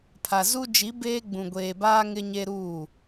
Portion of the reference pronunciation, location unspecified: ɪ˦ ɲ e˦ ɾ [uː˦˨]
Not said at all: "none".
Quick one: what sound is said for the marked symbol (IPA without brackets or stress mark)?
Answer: uː˦˨